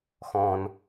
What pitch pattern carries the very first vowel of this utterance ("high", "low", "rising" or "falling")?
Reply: low